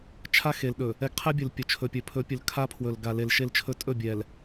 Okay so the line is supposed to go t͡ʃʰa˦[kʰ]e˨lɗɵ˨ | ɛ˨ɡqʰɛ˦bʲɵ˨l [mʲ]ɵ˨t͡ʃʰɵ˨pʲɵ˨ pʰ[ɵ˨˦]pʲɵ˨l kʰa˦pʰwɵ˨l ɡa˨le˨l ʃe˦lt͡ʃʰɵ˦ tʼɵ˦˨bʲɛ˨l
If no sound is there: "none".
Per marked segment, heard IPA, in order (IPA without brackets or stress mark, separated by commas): x, pʲ, ɵ˨˦